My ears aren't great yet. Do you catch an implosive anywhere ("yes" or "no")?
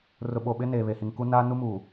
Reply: yes